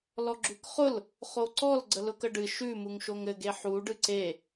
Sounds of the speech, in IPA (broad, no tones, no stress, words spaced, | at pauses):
lɔɡ͡ǁʉkχʊl | χoǀɔl ɡ͡ǀəlʊkəɖɨ ʃʉ muŋʃoŋɘ ɡeħu ɖɨǀe